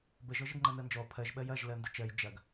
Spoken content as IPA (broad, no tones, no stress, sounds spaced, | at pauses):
b ə ʒ ɔ ʒ ə ɡ ŋ͡ǃ ɜ n ɜ n d͡ʒ ɔ pʰ ɜ ʒ ɓ ɜ j ɐ ʒ l ɜ n d ə t͡ʃ ɜ j d͡ʒ ɐ ɡ